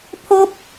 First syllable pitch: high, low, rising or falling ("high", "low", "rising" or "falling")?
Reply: high